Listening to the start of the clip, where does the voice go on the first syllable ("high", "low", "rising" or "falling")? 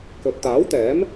low